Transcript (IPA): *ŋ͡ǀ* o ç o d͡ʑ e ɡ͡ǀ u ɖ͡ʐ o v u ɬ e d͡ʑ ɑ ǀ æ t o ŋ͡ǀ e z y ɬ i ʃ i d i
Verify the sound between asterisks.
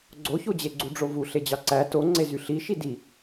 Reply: incorrect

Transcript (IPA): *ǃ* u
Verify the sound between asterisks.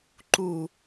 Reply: correct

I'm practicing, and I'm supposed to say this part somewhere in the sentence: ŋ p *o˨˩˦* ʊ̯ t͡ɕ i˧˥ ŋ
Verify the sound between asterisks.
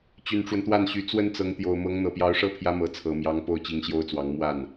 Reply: incorrect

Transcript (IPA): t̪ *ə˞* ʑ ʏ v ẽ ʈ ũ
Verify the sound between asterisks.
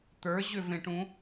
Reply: correct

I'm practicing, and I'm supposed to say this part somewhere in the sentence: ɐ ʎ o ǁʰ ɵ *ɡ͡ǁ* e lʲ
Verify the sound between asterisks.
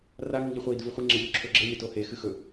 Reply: correct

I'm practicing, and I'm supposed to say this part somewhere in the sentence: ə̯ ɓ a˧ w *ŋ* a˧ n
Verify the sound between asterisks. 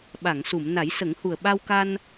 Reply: incorrect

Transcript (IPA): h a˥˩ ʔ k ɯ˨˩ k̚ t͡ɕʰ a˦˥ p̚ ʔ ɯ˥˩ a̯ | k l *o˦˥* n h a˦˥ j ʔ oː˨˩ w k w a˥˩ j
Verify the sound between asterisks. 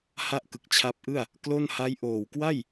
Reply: incorrect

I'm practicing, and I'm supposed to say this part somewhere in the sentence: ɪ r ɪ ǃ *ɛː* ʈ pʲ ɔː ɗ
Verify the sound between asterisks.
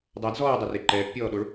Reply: correct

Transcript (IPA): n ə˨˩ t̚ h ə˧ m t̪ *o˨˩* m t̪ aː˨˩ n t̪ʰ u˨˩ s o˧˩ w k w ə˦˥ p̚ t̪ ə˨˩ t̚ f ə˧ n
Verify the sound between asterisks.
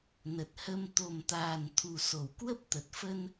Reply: correct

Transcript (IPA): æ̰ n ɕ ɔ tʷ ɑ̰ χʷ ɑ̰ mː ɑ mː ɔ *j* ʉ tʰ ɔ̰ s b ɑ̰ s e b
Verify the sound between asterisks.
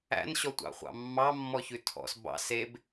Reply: incorrect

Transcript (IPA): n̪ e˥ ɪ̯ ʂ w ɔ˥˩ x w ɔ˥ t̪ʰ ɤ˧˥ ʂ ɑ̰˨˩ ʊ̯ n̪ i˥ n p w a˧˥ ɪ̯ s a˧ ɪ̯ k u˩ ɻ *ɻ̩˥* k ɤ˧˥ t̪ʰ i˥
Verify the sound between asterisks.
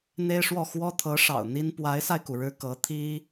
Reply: incorrect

